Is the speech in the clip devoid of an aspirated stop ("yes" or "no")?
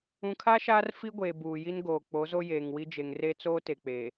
no